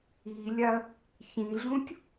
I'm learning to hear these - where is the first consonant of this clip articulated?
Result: tongue tip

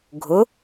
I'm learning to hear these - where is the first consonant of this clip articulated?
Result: velum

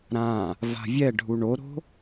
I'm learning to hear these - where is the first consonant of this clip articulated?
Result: tongue tip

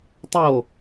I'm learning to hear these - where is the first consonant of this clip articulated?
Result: tongue tip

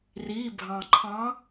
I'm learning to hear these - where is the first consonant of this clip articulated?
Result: tongue tip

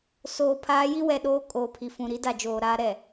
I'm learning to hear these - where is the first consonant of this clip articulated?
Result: tongue tip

